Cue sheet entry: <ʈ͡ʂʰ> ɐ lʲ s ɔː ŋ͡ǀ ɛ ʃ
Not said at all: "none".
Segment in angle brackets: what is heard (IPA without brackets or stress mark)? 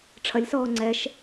ʈ͡ʂʰ